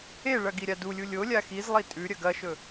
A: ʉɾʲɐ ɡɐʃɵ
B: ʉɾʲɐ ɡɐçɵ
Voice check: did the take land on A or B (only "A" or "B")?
A